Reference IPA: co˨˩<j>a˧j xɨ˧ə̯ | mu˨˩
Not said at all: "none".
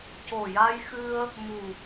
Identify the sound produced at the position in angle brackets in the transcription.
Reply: j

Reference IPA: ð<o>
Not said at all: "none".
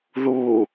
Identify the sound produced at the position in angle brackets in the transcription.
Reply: u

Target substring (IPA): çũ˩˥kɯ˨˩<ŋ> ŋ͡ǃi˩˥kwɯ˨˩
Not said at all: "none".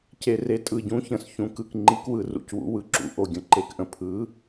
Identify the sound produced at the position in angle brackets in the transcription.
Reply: k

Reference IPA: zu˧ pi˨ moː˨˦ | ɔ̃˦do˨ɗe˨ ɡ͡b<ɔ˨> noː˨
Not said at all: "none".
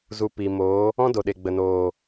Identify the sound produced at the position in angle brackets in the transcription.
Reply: ə˨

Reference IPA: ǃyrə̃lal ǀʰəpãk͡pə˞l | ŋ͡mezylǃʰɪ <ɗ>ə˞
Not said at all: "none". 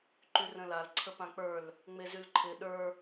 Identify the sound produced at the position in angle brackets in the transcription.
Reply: ɗ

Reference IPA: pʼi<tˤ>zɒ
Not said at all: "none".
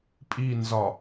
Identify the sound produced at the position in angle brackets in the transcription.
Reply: n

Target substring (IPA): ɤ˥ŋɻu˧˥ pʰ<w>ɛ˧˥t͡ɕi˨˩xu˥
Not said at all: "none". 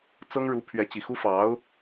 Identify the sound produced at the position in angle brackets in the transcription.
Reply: ɥ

